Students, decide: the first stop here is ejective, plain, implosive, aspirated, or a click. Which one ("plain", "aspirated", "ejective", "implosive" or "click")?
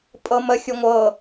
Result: ejective